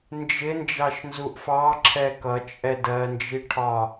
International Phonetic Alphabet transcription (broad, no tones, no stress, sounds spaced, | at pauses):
n d͡ʒ ɪ n d͡ʒ ɑ ʃ n z u ʔ f ɑ ǁʰ ɛ k ʌ t͡ʃʼ ɛ d ɜ n d͡ʒ i ʈʰ ɒ